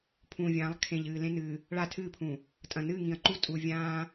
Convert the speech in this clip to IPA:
pʰ ũː˨ vʲ ãː˨˦ lˠ kʰ ẽ˨ ʎ ɨː˨ l ẽ˦ n ɨː˨ | ɭ a˦˨ tʰ ɨː˦˨ pʰ ũ˨ | tʼ ɐ̃˨ n ɨː˦˨ ŋ ĩ˨ ɐ̯ ǃ u˦ tʼ u˨ vʲ ãː˦

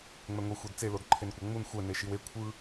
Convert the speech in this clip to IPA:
ŋ͡m ɛ ŋʷ i xʷ e d t͡s e l o d ǃʰ e n kʷ ɤ ŋ͡m u n xʷ ɛ n e ʃ i w e kʷʰ ɯ

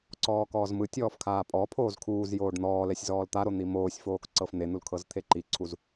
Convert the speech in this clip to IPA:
ǀ ɔː k ɔː z m ɯ tʲ ɔː f kʰ aː pʼ ɔ pʰ oː z kʰ uː z j oː ɖ n̪ ɔː l ɛ sʲ z ɔː l t̪ a ɾ o n̪ i m oː sʲ f oː k ǀ ɤ f n̪ e n̪ u l kʰ ɤ z t̪ʰ e ǃ i ǀʰ u z

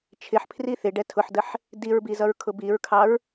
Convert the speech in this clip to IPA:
t͡ʃʰ ɪ ħ pʰ r i θ ɪ ɖ ɛ tʰ ʊ ħ d ə ħ | d i ɹ b i z ʌ ɹ kʰ ʊ b i ɹ kʰ ɑ ɹ

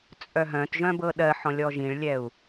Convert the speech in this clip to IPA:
t͡sʼ œ ɦ œ̃ t ʒ œ̃ b ɤ ɗ ɜ ħ ɔ̃ lʲ ɔ ʒ ĩ ɭ lʲ ɛ u̯

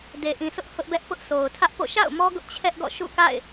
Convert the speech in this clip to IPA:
d e˨ ʔ ĩ˨ s ʊ˦ ʔ h ʊ˦ ʔ b ɛ˦ ʔ p ʊ˦ ʔ sʰ o˨ ʊ̯ tʰ ä˦ ʔ p o̰˦˨ ʃ a̰˦˨ ʊ̯ m ɔ˦ ɡ ʊ˦ ʔ t͡ɕʰ ɛ˦ ʔ ɡ ɔ̰˦˨ ʃ ṵ˦˨ k a̰˦˨ ɪ̯

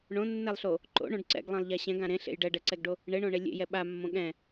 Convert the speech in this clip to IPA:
ɳ õ nː ɛ lˠ ɬ o | ǃ o̰ ɳ õ ɖ ǀ ɛ̰ ɡ lˠ ẽ lˠ ʎ a ɕ ɛ̃ ɡ ã ɾ ẽ ɬ ḛ j ɖ ɛ ɖ ɛ ǀ ɛ ɡ ɖ o | ɳ e ɳ õ ɳ e lʲ ḛ j ɛ ɓ a mː õ ɠ ɛ̃

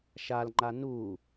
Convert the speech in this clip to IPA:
ʃ a l ŋ͡ǃ a n u

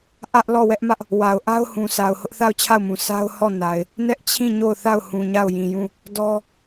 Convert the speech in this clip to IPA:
ʔ ä˦ ʔ l ɔ˦˨ w ɛ˦ ʔ m ä˦ ʔ | w a˨ ʊ̯ ʔ a˦ ʊ̯ h ũ˨ s a˨ ʊ̯ h ʊ˦ ʔ θ a˦˨ ʊ̯ t͡ɕʰ a˦˨ ʊ̯ m ũ˨ sʰ a˦ ʊ̯ h ɔ˦˨ n a˨ ɪ̯ | n ɛ˦ ʔ t͡ɕʰ ĩ˦˨ ɲ o˦˨ ʊ̯ θ a˦˨ ʊ̯ h ũ˨ ɲ a˦˨ ʊ̯ j ĩ˨ j ũ˦˨ | d ɔ˦

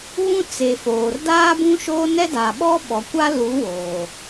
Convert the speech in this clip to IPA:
β ũ˦ t͡s e˨ f oː˨ r d aː˦ b ũ˦ ʃ oː˦ n ɛ˦ d aː˨ ɓ ɔ˦ ɓ ɔ˨ kʷ a˦ l u˨˦ w oː˨

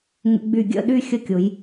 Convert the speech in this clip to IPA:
ŋ ə̰˧ ɡ͡b y˧˩ ɡʲ ə̰˥˧ ɗ y˥ xʲ ə˥ kʲ ʊ˩˧ j

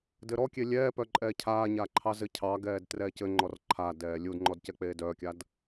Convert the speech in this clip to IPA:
d ɘ ɾ ɔ kʲ e lʲ ɛː p œ ǃʼ ɛː cʰ aː ɲ aː ǃʰ ɑ z ɘ cʰ ɑ ɡ ɛː d t r ɛː c ɘ ŋ͡ǃ ɔ r ǃʰ a d ɛː lʲ u d ŋ͡ǃ ɔ d c ɛ k͡p eː d œː kʲ a d

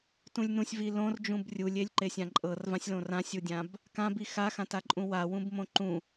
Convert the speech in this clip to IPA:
t ũ lʲ n ũ sʲ v i l õ r d͡ʒ ũ b rʲ u lʲ e lʲ ǃ e sʲ ã ǃʼ ɤ r v ã sʲ l õ r ã sʲ u dʲ ã b | k ã b i x a x ã t a ǃʼ ũ w a w ũ b m õ ǃ ũ

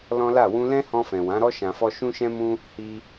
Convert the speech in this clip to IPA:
l ɔ̃˦ l a˦˨ w ũ˧ l ɛ̃˦ h ɔ̃˧ f ɛ̃˨ w ã˨˦ ɾ ɔ˦ ʃ ã˧ f ɔ˦ ʃ ũ˦ ʃ ɛ̃˦ m ũ˦ | h i˧

